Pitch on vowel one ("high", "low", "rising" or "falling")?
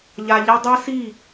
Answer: low